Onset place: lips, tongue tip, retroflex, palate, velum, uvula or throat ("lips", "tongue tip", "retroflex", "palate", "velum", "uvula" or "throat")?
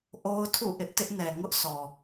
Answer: throat